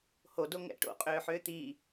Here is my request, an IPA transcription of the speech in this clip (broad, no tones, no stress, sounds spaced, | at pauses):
h o d o ŋ ɛ̰ ʈ o̰ qʼ ʏː ħ ʏː t̪ i